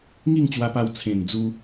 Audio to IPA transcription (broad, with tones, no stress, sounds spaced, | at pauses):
ŋ i˥˧ ŋ t͡ɕ w a˧ p a˧ w t͡sʰ ẽ˨˩ n d͡z u˧